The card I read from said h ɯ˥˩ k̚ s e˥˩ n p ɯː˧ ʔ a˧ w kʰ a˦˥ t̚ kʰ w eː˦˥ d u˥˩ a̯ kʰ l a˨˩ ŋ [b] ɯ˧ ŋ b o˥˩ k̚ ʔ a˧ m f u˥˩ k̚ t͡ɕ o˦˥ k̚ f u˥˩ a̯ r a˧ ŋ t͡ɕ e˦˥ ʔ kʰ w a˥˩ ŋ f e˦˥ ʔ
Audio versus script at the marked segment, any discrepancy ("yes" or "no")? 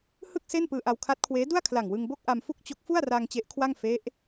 yes